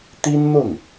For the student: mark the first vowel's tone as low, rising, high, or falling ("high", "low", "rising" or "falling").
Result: high